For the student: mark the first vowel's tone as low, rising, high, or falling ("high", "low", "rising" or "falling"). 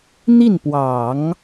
falling